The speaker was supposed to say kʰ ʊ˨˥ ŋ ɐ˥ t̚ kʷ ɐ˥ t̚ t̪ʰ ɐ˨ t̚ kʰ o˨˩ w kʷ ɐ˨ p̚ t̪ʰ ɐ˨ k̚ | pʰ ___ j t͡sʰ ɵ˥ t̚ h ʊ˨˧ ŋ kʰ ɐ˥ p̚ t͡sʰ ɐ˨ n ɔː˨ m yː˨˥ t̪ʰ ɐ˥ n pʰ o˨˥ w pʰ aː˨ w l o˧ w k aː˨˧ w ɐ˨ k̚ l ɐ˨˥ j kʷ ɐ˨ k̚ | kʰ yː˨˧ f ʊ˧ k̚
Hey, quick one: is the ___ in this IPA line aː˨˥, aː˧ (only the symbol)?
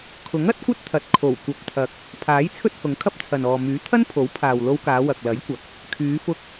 aː˨˥